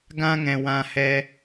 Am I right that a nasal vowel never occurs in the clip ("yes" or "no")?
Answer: no